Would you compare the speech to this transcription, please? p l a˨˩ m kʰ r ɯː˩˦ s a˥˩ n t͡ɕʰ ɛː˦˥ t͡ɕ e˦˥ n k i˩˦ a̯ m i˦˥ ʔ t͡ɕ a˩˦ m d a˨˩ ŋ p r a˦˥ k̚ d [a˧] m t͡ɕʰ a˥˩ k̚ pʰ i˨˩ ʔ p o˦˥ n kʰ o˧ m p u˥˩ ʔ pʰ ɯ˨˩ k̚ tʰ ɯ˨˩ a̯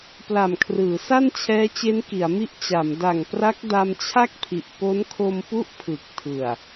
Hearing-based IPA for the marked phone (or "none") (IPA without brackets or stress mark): a˧